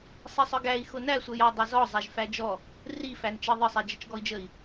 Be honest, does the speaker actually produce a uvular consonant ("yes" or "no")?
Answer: no